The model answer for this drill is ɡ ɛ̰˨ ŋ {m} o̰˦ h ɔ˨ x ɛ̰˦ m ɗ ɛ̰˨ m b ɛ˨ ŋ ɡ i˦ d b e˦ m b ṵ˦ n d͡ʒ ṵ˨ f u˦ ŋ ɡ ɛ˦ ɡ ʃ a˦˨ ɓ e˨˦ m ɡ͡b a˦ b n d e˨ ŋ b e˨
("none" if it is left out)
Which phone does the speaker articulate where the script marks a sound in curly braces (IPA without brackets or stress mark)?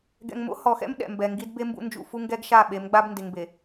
m